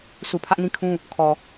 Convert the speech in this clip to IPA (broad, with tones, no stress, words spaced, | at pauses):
su˨ pʰä˦ʔnĩ˦kʰũ˦ | kʰɔ˨